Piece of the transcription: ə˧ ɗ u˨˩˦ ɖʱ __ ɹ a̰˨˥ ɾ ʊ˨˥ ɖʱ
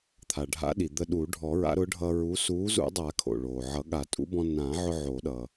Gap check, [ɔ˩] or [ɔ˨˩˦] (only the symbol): ɔ˨˩˦